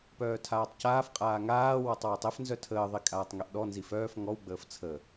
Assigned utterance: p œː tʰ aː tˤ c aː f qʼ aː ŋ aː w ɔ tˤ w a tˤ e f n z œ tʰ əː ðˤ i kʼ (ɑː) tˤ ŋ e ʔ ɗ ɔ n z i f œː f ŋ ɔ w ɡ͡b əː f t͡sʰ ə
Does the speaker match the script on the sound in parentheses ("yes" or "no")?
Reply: no